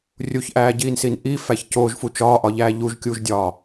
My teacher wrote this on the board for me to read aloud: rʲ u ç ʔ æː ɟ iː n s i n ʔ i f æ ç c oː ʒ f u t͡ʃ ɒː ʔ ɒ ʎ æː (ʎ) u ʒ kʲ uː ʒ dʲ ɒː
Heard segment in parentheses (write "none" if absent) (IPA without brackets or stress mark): ʎ